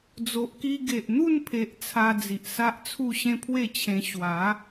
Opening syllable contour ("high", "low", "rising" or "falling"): low